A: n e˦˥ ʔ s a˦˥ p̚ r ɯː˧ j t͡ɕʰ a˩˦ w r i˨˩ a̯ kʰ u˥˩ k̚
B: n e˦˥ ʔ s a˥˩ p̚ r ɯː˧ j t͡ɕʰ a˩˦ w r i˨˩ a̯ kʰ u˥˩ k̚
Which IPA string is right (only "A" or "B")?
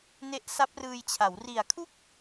A